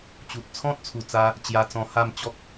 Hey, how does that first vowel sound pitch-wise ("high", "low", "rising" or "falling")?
low